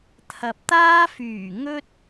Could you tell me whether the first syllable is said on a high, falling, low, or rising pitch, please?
low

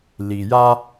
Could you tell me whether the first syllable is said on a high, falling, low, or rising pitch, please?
low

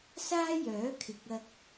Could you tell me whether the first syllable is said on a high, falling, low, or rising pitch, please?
high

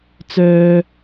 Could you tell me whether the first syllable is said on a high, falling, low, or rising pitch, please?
high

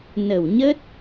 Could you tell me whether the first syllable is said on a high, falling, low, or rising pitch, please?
low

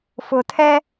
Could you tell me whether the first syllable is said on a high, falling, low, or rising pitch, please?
low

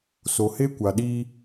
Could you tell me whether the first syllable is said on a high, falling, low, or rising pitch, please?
low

